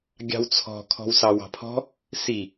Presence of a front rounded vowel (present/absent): absent